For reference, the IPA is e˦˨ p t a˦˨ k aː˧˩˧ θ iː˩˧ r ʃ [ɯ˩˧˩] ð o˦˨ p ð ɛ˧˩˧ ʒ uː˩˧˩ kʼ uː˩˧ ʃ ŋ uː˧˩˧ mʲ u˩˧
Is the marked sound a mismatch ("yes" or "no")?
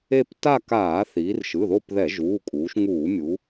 no